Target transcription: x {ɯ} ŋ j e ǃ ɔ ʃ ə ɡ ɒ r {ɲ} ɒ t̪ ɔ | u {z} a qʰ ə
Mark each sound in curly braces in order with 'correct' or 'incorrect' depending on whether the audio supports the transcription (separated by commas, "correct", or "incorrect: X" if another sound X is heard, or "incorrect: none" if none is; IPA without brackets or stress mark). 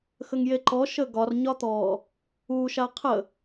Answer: incorrect: ə, correct, incorrect: ʃ